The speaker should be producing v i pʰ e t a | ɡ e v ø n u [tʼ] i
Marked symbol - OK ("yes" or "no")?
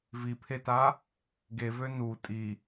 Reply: yes